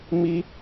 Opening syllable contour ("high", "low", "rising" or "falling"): high